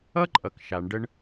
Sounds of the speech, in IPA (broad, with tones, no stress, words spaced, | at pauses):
ʌ˥ǃʼʌ˩k ʃa˩ɳɖə˧ɳ